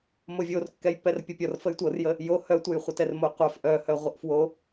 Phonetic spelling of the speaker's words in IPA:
movʲorkːɛjpːɛr pʲɔpʲɔr fəjtʷɤrjə | jo hœtʷəjχʷətɛr moqʷœf ʔœhœ ʁʷəʔfwo

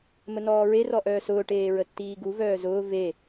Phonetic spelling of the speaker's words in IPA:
mənɔːɹe rɔʔœːsʊː ʈeːɹətːiːɡu vœːzʊː ve

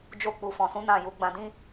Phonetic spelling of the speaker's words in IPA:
d͡ʒo˧k͡pu˨fɔ̃˨sũ˨˦ nã˦˨ju˨˦ ɡ͡bã˧dĩ˦

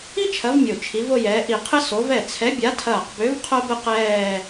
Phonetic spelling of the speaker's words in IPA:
i˥t͡ʃʰɐ˨˥v mʲo˧˩t͡ʃʰi˨˥vo˥˧jɛː˨˥ ʔi˧˩qʰɘ˥ so˨˥vɛ˥˩ t͡sʰɛ˨˥bʲa˨˥tʰɐː˧˩q bø˨˥v qʰo˥bɘ˥qɛː˥˧

